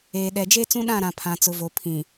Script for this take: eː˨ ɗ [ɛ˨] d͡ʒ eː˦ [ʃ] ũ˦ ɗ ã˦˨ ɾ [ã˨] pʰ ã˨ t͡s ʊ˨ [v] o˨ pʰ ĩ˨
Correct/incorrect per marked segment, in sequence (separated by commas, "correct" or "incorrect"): correct, incorrect, correct, correct